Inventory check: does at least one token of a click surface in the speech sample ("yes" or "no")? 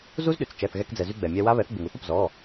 no